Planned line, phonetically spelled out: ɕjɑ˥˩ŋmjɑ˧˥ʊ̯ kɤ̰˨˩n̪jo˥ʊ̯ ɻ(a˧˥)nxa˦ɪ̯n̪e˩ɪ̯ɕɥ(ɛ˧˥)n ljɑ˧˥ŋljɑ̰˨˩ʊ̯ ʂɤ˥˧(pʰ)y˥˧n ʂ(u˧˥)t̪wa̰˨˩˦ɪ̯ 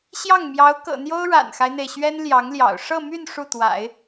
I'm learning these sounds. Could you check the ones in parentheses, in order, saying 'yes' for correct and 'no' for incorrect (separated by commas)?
no, no, no, no